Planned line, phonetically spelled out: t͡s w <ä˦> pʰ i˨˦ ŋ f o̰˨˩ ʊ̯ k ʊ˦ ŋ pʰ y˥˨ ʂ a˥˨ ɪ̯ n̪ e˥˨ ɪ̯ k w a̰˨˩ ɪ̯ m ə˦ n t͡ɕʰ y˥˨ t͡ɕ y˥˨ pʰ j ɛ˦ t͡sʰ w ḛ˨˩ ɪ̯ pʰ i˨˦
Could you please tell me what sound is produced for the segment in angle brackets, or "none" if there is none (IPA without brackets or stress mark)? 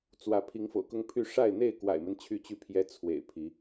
ä˨˦